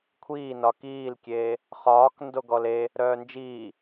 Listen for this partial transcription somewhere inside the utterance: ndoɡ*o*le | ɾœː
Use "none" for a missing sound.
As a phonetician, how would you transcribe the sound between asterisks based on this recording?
ɔ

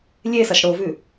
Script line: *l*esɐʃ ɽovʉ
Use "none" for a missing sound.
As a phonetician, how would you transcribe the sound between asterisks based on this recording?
lʲ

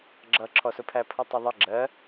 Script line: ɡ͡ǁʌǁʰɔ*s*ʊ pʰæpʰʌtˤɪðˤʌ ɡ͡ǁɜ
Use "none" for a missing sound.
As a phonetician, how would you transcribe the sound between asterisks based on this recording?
s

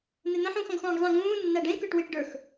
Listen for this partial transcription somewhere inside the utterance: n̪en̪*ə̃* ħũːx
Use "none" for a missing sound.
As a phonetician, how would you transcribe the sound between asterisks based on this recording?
ə̃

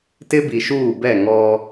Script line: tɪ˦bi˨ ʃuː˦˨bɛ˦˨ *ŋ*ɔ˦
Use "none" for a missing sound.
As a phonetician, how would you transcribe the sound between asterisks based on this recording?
ŋ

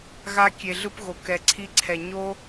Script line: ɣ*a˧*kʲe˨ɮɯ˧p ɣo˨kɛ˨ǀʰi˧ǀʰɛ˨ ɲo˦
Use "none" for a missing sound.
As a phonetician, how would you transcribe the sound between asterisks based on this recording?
a˧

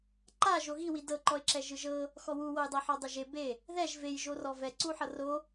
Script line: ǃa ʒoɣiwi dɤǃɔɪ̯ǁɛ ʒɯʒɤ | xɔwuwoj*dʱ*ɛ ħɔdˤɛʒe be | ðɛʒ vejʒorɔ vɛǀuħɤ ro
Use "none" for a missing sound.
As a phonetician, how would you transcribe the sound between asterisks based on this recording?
dˤ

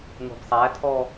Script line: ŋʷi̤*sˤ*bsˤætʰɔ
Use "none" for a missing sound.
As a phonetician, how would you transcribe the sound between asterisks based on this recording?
none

